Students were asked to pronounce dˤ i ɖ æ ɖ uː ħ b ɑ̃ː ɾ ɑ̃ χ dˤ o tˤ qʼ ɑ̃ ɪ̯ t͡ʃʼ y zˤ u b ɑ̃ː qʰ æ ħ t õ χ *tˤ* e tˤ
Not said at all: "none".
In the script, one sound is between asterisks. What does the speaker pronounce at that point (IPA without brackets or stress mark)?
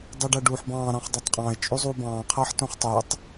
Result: tˤ